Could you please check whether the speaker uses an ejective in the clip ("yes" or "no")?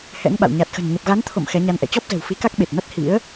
no